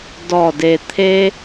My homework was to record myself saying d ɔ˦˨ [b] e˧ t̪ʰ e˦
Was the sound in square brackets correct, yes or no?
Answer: no